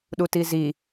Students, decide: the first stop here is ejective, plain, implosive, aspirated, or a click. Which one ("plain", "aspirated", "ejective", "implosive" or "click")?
implosive